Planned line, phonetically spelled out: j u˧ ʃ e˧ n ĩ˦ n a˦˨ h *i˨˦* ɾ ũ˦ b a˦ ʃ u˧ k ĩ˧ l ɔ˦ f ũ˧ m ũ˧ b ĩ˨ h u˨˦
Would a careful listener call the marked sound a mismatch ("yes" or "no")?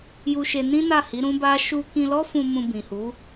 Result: no